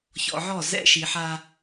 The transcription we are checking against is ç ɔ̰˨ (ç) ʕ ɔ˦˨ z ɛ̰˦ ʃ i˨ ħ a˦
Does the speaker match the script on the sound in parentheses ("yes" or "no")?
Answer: no